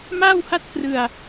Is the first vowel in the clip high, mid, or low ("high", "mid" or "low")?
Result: low